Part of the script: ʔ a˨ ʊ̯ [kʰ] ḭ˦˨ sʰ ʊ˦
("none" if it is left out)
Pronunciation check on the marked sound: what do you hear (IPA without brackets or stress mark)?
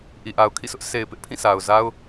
kʰ